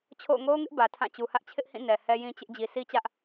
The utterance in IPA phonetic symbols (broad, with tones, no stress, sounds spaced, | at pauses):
t͡ɕʰ o̰˦˨ ʊ̯ ŋ o˦ ʊ̯ ŋ ɪ˦ ʔ b ä˨ tʰ ã˦˨ t͡ɕ u˨ h ä˦ ʔ t͡ɕʰ ɪ˦ ʔ h ĩ˦˨ n ɛ˨ h ɛ˦ j ĩ˦ t͡ɕ ɪ˦ ʔ d͡ʑ i˨ s i˦ t͡ɕ ä˦ ʔ